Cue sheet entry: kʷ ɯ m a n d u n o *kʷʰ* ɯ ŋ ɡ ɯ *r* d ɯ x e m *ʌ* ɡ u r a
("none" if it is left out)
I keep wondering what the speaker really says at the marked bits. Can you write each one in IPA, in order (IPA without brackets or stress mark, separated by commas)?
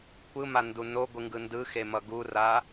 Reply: ɡʷ, n, ʌ